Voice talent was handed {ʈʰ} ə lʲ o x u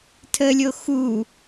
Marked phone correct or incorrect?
incorrect